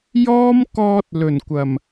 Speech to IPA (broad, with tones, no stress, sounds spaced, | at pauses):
j ɔː˥ m k ɔː˧ t̚ l ɵ˨˩ n kʷ ɐ˨˩ m